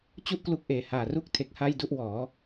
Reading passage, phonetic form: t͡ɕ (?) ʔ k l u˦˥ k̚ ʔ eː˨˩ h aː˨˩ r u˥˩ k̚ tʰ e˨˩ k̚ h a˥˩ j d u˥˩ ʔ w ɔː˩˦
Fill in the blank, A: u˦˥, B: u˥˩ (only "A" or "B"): B